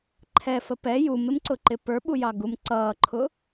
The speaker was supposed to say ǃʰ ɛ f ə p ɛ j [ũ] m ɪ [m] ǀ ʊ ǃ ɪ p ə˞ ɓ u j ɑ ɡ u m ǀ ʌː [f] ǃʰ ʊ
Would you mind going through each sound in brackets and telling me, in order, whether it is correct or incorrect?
incorrect: u, correct, incorrect: none

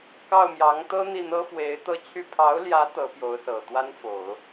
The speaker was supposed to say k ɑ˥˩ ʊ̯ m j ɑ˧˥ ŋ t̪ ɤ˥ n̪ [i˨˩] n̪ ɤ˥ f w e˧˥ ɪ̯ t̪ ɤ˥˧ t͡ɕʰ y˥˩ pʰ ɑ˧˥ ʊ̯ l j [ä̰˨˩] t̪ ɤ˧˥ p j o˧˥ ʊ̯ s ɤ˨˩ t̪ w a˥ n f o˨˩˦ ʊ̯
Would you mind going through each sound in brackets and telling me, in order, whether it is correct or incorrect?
incorrect: i˥˩, incorrect: ä˧˥

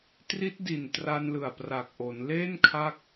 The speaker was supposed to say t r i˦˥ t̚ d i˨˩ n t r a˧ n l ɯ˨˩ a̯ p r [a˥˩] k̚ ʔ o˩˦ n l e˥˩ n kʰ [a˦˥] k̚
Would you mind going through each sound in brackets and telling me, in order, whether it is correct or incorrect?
incorrect: a˨˩, correct

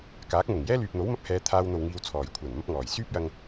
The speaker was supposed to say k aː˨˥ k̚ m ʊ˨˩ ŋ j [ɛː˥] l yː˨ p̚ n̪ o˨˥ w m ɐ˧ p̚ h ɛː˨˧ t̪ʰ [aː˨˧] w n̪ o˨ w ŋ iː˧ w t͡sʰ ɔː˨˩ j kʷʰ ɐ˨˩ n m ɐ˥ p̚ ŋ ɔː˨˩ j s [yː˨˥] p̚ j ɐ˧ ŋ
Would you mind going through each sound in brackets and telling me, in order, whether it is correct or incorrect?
correct, incorrect: aː˧, incorrect: yː˥

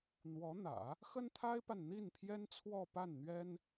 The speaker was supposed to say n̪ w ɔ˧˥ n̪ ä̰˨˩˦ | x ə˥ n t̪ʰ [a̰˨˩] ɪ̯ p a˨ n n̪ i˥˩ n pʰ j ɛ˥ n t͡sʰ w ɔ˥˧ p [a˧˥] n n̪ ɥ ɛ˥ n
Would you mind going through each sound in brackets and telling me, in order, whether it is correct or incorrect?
incorrect: a˥, incorrect: a˥˩

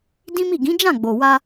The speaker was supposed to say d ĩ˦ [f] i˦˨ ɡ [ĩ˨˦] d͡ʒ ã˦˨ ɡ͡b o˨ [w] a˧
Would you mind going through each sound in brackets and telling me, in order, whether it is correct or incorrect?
incorrect: m, correct, correct

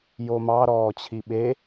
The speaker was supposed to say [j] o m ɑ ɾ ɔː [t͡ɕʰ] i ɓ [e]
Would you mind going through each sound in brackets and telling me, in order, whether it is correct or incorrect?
correct, correct, correct

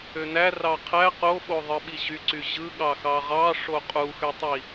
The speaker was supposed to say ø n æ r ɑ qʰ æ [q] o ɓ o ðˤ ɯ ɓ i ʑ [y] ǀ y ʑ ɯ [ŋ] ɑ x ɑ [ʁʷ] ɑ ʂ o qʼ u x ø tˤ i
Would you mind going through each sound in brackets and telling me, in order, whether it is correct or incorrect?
correct, correct, incorrect: ɠ, incorrect: ʁ

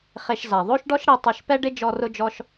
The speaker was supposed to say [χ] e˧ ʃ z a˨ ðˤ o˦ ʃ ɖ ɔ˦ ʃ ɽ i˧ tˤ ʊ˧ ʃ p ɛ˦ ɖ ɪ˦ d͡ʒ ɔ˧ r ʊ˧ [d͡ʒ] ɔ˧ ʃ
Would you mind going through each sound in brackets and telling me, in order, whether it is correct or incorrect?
correct, correct

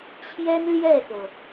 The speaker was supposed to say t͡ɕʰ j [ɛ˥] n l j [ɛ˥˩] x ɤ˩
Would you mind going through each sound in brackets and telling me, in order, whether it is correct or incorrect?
correct, correct

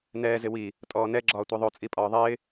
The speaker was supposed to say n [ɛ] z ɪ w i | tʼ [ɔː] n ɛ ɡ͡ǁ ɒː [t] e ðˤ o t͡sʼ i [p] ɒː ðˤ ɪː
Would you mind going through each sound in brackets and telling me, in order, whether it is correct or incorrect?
incorrect: ɛː, correct, incorrect: tʷ, incorrect: pʼ

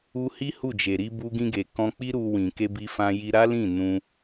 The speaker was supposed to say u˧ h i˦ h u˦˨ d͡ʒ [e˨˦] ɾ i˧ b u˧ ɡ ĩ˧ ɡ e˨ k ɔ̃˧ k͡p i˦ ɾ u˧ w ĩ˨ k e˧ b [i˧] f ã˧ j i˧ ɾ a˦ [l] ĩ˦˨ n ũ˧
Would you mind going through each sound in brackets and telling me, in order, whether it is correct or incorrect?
incorrect: e˨, correct, correct

